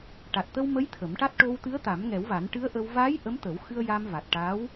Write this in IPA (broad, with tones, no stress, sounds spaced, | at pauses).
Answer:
ʈ a˨˩ t̚ t̪ ə˧ w m ə˧˥ j t̪ʰ ə˨˩˦ m ʈ a˦˥ t̚ ʈ o˧ w t̪ ɨ˧˥ ə̯ t̪ a˨˩˦ m ŋ ɛ˨˩˦ w v a˨˩˦ n ʈ ɨ˧˥ ə̯ ʔ ə˧ w v aː˧˥ j ʔ ə˧˥ m t̪ ə˨˩˦ w x ɨ˧ ə̯ j a˧ m v a˨˩ t̚ ʈ a˧˥ w